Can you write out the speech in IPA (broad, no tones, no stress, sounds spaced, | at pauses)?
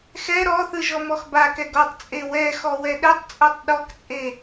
x ɛ ɾ ɔ θ ɯ ʒ ɔ m ɔ x b a k ɛ ɡ ɔ tˤ t͡sʼ e w ɛ x ɔ w ɛ ɗ ɛ tˤ t͡sʼ o tˤ ɗ ɔ k t͡sʼ e